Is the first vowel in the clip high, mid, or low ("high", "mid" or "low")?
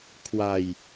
low